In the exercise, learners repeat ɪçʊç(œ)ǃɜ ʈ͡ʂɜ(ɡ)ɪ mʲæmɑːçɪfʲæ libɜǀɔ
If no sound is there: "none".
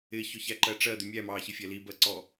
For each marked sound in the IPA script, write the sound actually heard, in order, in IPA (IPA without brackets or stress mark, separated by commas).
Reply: æ, d̪